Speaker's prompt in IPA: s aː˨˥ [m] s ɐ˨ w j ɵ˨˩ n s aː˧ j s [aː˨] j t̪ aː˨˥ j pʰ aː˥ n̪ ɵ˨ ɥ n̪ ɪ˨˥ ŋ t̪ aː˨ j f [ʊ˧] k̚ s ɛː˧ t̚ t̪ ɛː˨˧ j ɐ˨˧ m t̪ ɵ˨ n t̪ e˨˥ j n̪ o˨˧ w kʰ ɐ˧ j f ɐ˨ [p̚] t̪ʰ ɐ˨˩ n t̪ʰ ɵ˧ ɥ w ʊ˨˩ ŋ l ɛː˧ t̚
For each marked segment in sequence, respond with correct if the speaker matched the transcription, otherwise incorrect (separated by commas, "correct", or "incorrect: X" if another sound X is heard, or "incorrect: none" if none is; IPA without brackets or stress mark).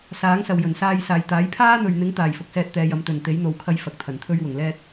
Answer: incorrect: ŋ, correct, incorrect: ʊ˨, incorrect: k̚